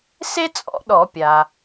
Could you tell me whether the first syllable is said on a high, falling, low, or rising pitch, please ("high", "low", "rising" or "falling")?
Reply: high